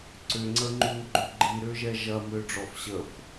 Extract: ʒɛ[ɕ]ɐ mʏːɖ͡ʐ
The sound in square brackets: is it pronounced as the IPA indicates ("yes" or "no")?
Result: no